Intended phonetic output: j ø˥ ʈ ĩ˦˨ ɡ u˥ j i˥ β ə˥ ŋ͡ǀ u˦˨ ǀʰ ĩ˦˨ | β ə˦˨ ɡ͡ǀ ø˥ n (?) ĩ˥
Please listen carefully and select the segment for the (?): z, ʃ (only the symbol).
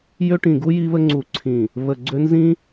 z